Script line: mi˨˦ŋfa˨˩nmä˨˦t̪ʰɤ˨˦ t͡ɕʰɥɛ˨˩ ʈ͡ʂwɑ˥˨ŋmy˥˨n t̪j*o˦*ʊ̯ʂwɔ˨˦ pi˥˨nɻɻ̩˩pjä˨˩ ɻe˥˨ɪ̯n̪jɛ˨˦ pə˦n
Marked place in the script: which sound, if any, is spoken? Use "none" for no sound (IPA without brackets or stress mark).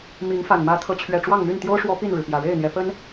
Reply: o˦